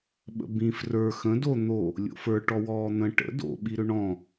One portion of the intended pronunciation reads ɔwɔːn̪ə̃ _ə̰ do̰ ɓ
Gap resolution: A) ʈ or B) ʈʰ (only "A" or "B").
A